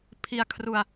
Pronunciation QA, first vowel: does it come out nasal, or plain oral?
oral